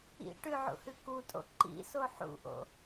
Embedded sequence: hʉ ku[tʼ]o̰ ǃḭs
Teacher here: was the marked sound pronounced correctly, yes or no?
yes